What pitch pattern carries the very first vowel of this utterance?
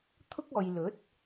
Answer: high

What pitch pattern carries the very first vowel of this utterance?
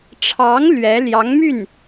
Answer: rising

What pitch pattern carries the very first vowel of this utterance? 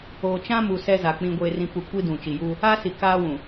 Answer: low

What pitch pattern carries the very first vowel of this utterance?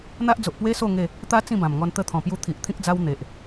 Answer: high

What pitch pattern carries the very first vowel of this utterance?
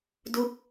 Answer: falling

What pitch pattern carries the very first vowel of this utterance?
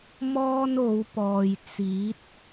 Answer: high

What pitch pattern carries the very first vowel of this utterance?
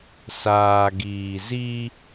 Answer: low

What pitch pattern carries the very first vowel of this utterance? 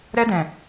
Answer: high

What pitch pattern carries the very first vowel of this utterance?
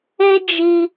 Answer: high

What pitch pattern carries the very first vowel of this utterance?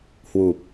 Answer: low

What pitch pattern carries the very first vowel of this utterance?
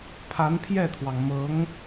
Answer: rising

